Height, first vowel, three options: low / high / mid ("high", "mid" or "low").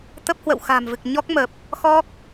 mid